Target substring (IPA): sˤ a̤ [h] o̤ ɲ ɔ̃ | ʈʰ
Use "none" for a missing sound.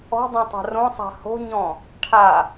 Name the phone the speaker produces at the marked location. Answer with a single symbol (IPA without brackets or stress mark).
h